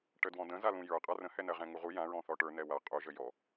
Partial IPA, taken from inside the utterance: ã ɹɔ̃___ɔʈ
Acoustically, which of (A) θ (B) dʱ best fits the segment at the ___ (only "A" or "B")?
A